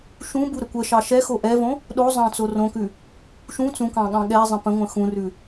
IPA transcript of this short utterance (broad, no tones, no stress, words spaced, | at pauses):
ʃũbu ɾəkʷəʃɑ ʃɛxo ʔɛvõ | ɗo zˤɑ̃t͡sorõkʉ | ʃũ t͡sũkɑ̃ ɠɑ̃ɠɛzˤə̃ pə̃ŋʷə̃ xũrʉ